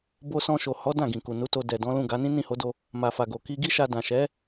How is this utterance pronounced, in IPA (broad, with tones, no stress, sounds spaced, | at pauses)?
b o˧ s ɔ̃˧ ʃ o˨ h ɔ˨˦ d ã˦˨ ɡ ĩ˨ k u˨ n u˨˦ t o˧ d ɛ˨ d ɔ̃˨˦ l ũ˦˨ ɡ a˨˦ n ĩ˦ n ĩ˦˨ h o˨˦ d o˧ | m a˨ f a˨ ɡ o˨ k i˧ ɡ i˦ ʃ a˧ d ã˨ ʃ ɛ˨˦